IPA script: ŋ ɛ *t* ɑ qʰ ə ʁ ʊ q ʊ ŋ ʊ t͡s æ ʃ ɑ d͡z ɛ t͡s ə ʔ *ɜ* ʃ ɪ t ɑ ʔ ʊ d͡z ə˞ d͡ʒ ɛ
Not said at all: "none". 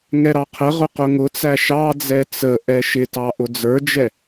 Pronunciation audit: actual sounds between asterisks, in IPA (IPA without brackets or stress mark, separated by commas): ɾ, ɛ